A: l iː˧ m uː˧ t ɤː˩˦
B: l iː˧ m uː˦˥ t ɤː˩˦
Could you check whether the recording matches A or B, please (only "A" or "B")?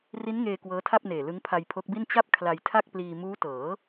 B